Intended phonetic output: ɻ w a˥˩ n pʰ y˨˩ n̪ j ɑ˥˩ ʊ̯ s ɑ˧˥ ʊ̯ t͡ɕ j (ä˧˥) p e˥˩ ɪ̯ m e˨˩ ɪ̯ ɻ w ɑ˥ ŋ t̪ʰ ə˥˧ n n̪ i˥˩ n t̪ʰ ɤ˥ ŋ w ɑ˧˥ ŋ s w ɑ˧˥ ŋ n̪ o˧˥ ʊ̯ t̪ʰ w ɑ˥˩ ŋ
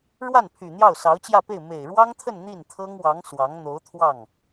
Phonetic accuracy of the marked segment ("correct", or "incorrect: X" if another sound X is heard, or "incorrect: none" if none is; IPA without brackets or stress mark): incorrect: ä˥˧